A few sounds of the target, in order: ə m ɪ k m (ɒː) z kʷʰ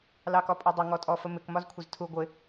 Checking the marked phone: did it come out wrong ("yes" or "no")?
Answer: yes